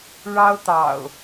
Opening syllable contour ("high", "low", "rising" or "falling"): high